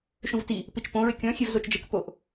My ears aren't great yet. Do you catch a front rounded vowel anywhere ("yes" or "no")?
no